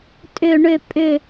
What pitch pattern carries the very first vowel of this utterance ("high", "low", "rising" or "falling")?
low